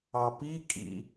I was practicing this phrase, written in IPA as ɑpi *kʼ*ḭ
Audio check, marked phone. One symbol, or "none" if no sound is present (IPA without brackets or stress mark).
kʼ